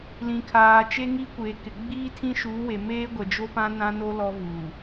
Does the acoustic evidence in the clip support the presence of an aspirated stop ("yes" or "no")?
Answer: yes